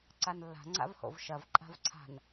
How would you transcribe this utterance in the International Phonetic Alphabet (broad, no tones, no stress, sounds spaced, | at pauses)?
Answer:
ǀ a n lː a̤ ŋ͡ǀ a̰ v h o̰ v ʃ ɐ v ǃʼ a̤ v ǀʰ a̤ n